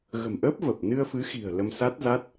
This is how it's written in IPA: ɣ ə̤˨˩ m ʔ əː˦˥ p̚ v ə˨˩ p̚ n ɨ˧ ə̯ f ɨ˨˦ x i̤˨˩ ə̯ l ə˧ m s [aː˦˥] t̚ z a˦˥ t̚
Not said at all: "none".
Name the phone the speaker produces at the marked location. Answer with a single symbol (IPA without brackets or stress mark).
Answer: a˦˥